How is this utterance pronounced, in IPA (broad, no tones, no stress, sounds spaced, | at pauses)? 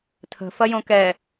tʰ ə̤ f ɐ j õ k ɛ